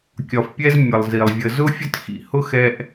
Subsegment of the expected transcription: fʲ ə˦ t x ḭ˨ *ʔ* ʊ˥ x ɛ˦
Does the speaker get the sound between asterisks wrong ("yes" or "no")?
yes